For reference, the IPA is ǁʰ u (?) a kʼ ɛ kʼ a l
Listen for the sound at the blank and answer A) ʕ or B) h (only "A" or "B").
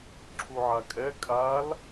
A